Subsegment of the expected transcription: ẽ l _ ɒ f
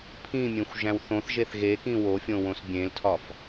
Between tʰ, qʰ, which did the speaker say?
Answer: tʰ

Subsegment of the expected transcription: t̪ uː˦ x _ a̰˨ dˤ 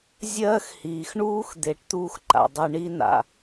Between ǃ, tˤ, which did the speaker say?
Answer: ǃ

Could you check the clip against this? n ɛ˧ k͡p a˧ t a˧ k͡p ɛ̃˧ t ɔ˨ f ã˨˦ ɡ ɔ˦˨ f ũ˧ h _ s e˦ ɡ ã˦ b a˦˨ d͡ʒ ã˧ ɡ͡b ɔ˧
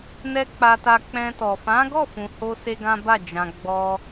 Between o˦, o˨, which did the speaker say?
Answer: o˦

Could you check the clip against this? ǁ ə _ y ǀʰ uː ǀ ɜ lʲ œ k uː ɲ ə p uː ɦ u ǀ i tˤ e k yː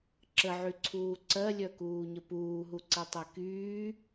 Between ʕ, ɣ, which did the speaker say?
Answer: ʕ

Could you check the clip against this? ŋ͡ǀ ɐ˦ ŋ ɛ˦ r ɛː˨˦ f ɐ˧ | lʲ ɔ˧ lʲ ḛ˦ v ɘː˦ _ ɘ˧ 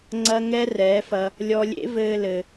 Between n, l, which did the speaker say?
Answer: l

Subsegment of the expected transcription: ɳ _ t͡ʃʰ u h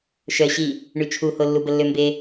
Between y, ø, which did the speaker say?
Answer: y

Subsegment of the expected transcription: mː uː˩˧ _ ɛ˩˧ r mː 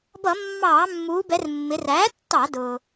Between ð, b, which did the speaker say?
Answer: b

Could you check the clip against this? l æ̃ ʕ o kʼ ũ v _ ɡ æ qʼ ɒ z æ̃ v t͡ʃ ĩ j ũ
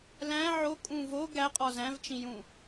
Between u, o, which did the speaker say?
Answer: o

